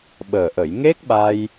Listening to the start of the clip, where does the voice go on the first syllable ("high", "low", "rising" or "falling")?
low